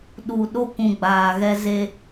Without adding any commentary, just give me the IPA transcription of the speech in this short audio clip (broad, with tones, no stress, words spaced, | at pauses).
ɗu˨ɗo˦kʷũ˨ ɡ͡baː˨ɣɛ˦ ze˦